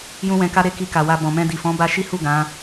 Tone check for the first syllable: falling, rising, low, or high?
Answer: high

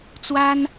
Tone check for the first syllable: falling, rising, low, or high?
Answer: high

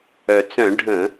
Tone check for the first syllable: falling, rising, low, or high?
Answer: low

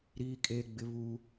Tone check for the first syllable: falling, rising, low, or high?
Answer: high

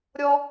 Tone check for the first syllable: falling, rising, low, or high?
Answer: high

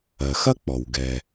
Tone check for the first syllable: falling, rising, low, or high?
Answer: low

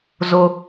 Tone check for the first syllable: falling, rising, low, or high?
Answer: high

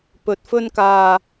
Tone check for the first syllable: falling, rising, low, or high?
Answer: low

